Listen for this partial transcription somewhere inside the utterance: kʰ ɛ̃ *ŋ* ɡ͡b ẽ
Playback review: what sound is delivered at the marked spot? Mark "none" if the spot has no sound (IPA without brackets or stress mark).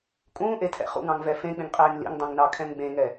ŋ